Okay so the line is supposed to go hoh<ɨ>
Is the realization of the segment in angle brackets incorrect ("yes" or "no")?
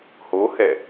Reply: yes